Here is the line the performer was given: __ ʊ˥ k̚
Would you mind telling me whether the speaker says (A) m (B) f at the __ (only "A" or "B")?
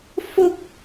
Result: B